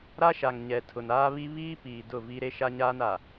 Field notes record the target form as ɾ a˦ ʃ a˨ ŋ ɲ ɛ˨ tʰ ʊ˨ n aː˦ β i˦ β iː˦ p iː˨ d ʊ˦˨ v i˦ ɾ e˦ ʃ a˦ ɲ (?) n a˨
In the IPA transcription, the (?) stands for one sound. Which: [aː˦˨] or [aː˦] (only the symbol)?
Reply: aː˦